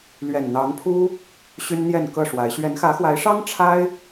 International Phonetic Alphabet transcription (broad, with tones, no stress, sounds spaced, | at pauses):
l ɥ ɛ˨˩ n n̪ ɑ˨˦ ŋ pʰ u˦ | ɕ y˦ n n̪ j ɛ˥˨ n k ɤ˥˨ ʂ w a˨˦ ɪ̯ ɕ ɥ ɛ˨˦ n x ä˨˦ x w a˨˦ ɪ̯ ʂ ɑ˦ ŋ ʈ͡ʂʰ a˦ ɪ̯